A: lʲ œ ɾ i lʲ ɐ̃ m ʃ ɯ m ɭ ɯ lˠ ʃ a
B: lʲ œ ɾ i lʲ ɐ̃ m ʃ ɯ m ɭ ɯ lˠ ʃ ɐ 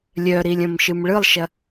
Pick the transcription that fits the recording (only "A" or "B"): B